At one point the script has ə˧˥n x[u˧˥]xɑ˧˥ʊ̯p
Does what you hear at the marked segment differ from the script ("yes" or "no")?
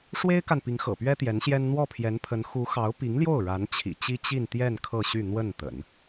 no